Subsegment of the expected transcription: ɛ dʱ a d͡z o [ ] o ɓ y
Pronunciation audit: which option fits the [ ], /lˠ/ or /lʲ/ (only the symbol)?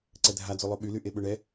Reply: lˠ